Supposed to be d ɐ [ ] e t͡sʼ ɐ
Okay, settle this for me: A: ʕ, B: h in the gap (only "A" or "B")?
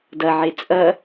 A